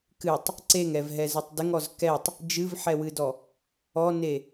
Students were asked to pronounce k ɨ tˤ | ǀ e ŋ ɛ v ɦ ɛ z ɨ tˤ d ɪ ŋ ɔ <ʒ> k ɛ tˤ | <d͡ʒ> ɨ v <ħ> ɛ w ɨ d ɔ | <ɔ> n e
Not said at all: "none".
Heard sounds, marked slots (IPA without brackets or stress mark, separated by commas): z, d͡ʒ, ħ, ɔ